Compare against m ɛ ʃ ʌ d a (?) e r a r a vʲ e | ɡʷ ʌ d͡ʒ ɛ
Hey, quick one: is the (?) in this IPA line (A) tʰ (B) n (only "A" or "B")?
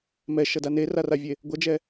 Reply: B